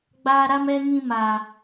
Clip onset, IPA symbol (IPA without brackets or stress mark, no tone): ɡ͡b